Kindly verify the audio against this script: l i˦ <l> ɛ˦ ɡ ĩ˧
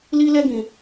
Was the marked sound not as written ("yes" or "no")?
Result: no